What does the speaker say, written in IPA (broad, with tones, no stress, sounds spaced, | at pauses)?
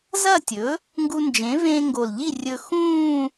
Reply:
z ɐ˥˩ tʲ ɵ˩˥ | ŋ ɡ u˧ n d͡ʒ ẽ˩˥ v ẽː˧ ŋ ɡ o˨˩ l ʎ i˥˩ rʲ ɵ˧ x ũː˥˧